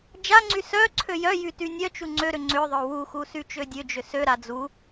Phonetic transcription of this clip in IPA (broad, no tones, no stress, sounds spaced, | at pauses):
d͡ʒ a ŋ͡ǀ y s œ ǀʰ ø j œ j y t y nʲ œ t͡ʃ u ŋ͡ǀ ø ɾ ʏ ŋ͡ǀ ʏ ðˤ œ w u x u s y t͡ʃ ø dʲ ø d͡ʒ ø s ø ɾ a d͡z u